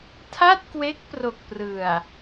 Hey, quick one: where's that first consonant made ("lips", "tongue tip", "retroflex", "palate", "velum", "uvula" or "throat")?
tongue tip